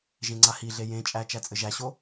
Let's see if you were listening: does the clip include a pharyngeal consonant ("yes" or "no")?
no